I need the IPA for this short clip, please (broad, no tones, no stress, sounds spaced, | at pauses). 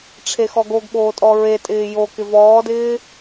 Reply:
ʈ͡ʂʰ e x ɔ ɡ o ɡ ɓ oː tʼ ɔ ɹ e tʼ ɪː j o k ɪ v ɔː d ɪː